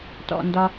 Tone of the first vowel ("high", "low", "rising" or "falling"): low